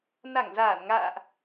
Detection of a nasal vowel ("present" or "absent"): absent